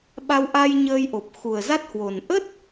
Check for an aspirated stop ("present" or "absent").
absent